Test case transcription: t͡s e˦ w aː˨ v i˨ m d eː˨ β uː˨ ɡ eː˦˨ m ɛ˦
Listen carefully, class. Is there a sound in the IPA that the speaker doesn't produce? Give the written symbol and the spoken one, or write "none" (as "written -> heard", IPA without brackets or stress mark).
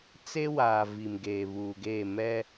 d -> ɡ